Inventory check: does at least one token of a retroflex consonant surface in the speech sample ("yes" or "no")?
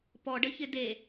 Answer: yes